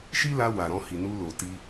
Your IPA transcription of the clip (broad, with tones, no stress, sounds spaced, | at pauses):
ʃ i˦ l a˧ w a˨ ɾ ɔ̃˧ h i˨ n u˧ l o˨ t i˧